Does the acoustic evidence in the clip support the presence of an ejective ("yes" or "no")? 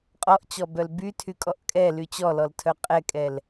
yes